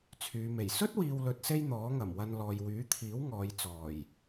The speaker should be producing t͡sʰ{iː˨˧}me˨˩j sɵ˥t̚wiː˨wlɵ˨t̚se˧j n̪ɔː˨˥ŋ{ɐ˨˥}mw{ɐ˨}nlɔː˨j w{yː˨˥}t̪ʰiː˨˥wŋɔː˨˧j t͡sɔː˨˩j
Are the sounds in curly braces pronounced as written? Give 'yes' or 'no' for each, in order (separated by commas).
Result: no, no, no, yes